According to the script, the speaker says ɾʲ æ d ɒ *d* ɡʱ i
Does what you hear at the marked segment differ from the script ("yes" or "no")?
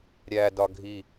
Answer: yes